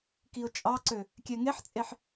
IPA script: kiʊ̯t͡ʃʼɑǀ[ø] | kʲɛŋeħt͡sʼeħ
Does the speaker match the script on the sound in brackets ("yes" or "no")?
yes